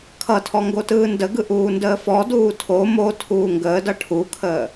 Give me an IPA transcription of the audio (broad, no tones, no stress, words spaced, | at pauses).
kʰʌtʰɔ ŋɡotɯːndəɡɯ ʔuːndəːfɔduː tʰo mo tʰuːŋɡəːdʌ ʈʰukʰəː